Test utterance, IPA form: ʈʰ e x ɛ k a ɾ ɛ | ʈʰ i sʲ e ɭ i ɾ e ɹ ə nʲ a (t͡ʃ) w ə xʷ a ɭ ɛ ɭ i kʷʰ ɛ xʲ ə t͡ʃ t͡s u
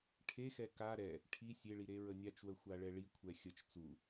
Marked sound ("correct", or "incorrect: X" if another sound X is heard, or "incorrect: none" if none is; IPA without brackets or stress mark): correct